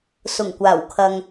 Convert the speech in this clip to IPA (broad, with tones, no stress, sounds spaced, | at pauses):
s ʊ˨˩ ŋ kʷ aː˨˩ w kʰ ɐ˨ ŋ